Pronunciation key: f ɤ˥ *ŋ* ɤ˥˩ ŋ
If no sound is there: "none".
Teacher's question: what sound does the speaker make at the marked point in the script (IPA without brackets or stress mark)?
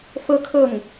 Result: kʰ